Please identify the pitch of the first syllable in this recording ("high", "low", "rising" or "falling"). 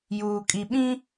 low